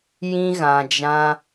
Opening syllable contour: high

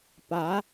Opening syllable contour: rising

